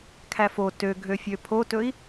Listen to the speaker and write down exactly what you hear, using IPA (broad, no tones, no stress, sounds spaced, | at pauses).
kʰ æ f o t ø ɡʱ ø fʲ ø pʰ o t ɵ i̯